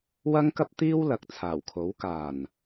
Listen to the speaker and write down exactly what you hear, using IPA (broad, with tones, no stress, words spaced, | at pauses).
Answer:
wɐ˥ŋkɐ˥p̚t̪iː˥w lɐ˨˥k̚t͡sʰaː˨˩wkʰo˨˥w kaː˨˩n